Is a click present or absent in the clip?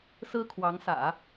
absent